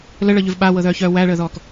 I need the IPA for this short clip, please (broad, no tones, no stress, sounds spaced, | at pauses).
l ə ɭ ɤ ʎ ʉ v ɓ a w ɤ ð œː ç œː w æ ɭ əː ð ɔː k